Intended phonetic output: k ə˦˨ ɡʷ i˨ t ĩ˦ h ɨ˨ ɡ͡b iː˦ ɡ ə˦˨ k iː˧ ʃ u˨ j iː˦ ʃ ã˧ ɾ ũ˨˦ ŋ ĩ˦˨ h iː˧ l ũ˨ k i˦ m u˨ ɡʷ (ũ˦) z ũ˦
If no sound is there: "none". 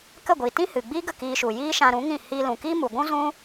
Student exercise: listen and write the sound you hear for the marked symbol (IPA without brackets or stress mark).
ũ˦